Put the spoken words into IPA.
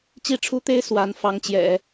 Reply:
t͡ɕ i˥˩ ʈ͡ʂʰ u˥ t̪ e˥ ɪ̯ s w a˧˥ n f ɑ˧˥ ŋ t͡ɕ j ɛ̰˨˩˦

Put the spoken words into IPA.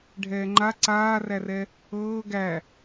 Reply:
ɖʱ ɛː ŋ͡ǃ a ǀ aː r æ r ɛ | ɤː ɡ æ

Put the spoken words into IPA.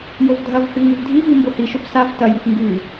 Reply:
j o v dʱ ɐ v h ʉ ŋ ʉ v dʱ i v i m b o h i ʃ o p s a v t ɐ j i p ŋ ɡ ʉ

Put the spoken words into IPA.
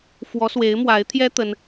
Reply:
f w ɔ˧˥ s w e˧˥ ɪ̯ m w a˧˥ ɪ̯ t̪ʰ j ɛ˥ t̪ ə˥ n

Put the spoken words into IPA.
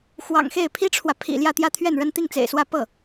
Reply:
x w ɑ̰˨˩ ŋ x e˥˩ ɪ̯ pʰ i˥ ʈ͡ʂʰ w ä˨ pʰ ḭ˨˩ l j ä˥˧ t̪ j ä˥˧ t̪ʰ ɥ ɛ˥˩ n ɻ ə˥ n t̪ i˥˩ ŋ t͡s ḛ˨˩ ɪ̯ s w ä˥˧ p ɤ˥˩

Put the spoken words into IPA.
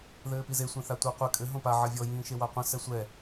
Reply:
ð ɘː p i z e sʷ ẽ θ a tʷ a qʷ ɘ kʼ ɘ ɦ õ p a ʕ ɐ vʲ ɔ j ĩː ʃ e w a qʷ ɐ̃ s ɛ sʷ ɛ

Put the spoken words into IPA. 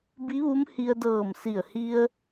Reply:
b i˧˥ ʋ u˧˥ m h i˧ ə̯ d ɤː˧˩ m s i˧˩ ə̯ h i˧ ə̯

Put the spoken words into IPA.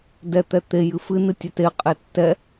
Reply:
d ɛ t̪ ɛ t̪ e j ɨ f ɨ n ɨ tʲ ɛ t e qʼ e tː ɛ

